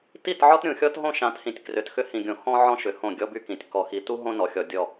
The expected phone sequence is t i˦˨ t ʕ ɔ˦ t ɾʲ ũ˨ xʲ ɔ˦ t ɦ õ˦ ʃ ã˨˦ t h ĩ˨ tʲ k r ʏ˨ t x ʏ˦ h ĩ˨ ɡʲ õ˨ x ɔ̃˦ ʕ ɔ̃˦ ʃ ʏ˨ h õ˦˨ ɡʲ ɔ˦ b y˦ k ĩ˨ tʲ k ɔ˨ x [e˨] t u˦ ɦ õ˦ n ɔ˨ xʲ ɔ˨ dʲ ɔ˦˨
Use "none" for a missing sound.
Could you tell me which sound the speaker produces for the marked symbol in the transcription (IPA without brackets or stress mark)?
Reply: i˨